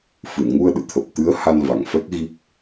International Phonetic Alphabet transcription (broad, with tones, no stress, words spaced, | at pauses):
fɨ˧˩nŋu˧ə̯ ɗɨ̰˧˨t̪ʰə˨˩p̚t̪ɨ˨˦ə̯ ha˧nva˧˩ŋfɛ˦˥k̚ ɣi˦˥k̚